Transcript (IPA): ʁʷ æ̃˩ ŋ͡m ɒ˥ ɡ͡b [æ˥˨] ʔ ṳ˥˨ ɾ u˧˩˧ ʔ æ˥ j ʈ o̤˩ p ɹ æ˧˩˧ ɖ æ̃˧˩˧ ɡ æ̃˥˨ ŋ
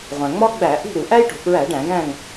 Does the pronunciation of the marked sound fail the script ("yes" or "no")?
yes